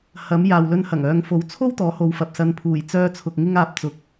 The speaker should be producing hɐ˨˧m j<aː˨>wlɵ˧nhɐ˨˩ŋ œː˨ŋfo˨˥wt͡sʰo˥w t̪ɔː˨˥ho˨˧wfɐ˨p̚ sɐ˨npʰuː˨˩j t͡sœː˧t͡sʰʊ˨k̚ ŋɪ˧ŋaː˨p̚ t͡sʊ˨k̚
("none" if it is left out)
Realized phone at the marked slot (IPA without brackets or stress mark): aː˨